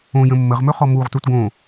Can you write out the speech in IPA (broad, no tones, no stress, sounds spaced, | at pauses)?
õ j ə̃ mː ə ʁ m ɵ χ ɔ m u ʁ t u t ɡ õ